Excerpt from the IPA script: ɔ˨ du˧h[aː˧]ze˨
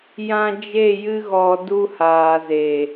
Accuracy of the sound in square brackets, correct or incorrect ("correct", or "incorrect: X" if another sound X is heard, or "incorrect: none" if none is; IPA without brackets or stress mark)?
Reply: incorrect: aː˨